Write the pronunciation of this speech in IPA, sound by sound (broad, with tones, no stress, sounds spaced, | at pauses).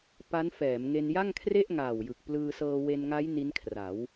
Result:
p a˦˥ n f ɛː˩˦ m ŋ e˧ n j a˥˩ ŋ kʰ r e˥˩ ʔ ŋ aː˨˩ w j ɯ˨˩ k̚ p l ɯː˧ s ɤː˧ w e˧ n ŋ a˦˥ j n i˦˥ n kʰ r a˩˦ w